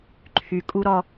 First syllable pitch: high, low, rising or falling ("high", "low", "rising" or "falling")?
low